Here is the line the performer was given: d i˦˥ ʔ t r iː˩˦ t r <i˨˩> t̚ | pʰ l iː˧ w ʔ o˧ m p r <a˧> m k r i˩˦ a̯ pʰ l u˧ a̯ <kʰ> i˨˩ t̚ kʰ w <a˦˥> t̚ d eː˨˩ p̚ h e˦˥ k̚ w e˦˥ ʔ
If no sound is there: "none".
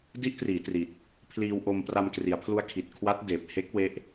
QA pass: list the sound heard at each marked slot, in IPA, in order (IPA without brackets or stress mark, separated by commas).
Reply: i˨˩, a˧, kʰ, a˦˥